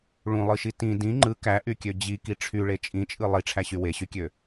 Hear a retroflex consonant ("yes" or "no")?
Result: yes